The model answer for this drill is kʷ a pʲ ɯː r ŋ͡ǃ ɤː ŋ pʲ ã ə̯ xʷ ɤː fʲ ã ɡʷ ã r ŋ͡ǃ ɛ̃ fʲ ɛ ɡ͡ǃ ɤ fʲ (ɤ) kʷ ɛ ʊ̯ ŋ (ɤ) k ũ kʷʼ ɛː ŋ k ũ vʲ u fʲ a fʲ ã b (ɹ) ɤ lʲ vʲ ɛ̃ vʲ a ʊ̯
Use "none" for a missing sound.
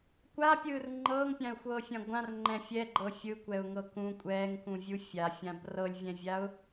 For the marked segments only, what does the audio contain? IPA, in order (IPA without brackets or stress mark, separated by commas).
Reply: ɯ, ɤ, r